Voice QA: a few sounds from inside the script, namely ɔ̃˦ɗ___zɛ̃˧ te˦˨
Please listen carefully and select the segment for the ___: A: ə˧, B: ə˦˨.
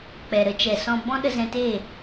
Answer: A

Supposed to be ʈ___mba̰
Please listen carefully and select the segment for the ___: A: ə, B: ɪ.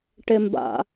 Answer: B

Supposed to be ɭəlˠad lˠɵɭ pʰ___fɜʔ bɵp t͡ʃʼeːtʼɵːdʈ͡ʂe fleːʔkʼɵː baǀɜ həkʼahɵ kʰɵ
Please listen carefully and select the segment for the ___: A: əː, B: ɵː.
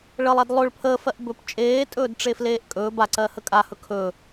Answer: A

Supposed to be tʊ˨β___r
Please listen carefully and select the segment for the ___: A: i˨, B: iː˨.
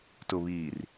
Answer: B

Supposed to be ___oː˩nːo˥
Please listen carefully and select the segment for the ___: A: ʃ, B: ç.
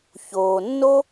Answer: B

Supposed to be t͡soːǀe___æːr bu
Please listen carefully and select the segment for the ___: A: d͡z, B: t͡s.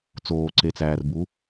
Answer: B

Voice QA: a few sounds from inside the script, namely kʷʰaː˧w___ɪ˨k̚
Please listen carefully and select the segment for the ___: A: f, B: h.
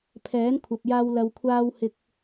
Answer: B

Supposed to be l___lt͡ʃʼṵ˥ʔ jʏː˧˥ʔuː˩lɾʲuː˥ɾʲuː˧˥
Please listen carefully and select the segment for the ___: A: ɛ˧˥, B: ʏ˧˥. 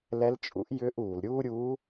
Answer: A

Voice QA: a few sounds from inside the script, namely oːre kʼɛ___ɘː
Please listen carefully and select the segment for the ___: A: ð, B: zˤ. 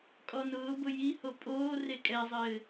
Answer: B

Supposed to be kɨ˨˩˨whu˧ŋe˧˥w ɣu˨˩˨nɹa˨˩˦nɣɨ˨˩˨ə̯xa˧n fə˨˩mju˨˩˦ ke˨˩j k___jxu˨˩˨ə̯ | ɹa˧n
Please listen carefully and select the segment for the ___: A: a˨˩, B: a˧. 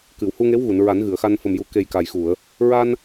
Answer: A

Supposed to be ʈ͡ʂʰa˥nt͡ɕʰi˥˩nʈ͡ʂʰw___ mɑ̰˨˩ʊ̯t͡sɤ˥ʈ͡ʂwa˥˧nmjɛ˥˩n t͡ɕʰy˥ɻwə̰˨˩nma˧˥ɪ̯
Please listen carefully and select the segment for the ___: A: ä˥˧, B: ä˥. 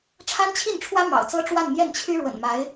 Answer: B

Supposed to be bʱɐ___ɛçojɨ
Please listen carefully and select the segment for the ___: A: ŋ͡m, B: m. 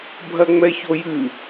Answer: A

